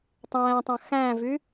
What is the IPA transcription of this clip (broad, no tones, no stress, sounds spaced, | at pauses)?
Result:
tˤ æ̃ː tˤ ã x æ̃ː v y